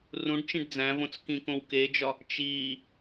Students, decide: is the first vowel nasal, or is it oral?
nasal